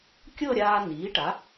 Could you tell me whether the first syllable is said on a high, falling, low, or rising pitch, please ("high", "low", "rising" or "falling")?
falling